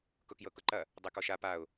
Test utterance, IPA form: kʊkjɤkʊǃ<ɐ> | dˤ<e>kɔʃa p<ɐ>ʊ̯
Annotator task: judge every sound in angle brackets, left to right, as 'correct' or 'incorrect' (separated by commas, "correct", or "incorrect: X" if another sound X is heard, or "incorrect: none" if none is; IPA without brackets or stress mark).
correct, correct, incorrect: a